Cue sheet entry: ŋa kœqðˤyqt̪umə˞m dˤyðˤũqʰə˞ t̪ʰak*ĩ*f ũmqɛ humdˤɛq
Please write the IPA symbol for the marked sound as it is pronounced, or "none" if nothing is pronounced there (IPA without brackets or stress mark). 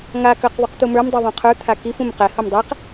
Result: i